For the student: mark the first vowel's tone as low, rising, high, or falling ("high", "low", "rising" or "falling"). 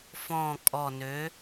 low